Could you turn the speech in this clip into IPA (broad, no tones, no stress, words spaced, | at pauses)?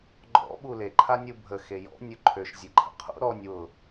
ɡ͡ǃɔ̰ ɓule ǃʰanʲubʱə xejɔ̰ nʲʊǃʰøʃ zʲeǃʰə̰qʰṵ ɾɔnʲ wʊ